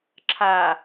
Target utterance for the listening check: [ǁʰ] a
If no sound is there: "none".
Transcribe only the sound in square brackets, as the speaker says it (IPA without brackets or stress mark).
ǁʰ